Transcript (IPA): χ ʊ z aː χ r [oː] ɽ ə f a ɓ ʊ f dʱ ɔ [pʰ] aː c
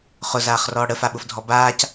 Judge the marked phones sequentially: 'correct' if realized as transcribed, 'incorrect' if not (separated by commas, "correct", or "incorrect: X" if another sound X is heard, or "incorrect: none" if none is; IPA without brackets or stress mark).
incorrect: ɔː, incorrect: b